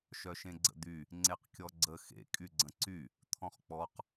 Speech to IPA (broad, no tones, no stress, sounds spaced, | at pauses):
ʃ œ ʃ ẽ ɡ͡ǀ ə̰ d̪ y | ŋ͡ǀ e q kʲ ɔ ɡ͡ǀ ə x ḛ kʼ y ɡ͡ǀ ə̃ ǀ y | t̪ʰ ɔ̃ χ k͡p ɔ q